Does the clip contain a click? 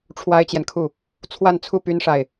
no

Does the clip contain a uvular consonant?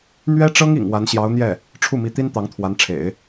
no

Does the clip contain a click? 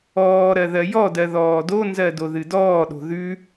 no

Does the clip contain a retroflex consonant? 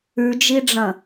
yes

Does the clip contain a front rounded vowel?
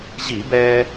no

